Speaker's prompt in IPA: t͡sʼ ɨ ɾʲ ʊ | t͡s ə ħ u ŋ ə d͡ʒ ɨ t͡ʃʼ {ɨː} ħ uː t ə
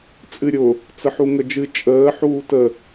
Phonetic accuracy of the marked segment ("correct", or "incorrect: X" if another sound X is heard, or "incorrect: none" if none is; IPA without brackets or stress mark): incorrect: əː